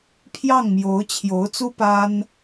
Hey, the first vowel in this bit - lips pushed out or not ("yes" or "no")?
no